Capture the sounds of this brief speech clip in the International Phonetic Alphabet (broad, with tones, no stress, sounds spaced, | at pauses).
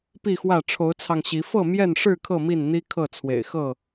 p i˥˨ x w ä˥˨ ʈ͡ʂʰ o˨˦ ʊ̯ t͡sʰ ɑ˧ ŋ ɕ i˨˦ f ɤ˥˨ m j ɛ˥˨ n ʂ ɻ̩˥˨ kʰ ɤ˥˨ m i˥˨ n n̪ i˦ kʰ ɤ˥˨ t͡sʰ w ḛ˨˩ ɪ̯ x ɤ˥˨